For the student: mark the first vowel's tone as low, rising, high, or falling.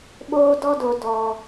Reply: high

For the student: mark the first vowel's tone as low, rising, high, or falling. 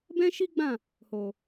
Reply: high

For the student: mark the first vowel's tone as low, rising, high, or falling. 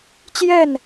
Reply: falling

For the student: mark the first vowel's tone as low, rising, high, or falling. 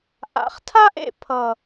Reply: low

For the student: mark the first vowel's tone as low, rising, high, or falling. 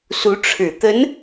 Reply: rising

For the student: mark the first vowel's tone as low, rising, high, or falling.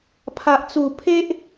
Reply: low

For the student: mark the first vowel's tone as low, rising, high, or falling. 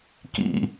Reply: low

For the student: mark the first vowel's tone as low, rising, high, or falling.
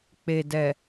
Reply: low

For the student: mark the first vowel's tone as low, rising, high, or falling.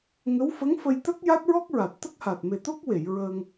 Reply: rising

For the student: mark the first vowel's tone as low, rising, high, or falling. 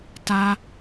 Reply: low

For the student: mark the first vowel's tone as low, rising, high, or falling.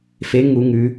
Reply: rising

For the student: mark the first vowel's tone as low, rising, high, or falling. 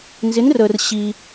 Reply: rising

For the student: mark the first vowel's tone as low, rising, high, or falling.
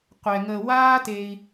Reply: low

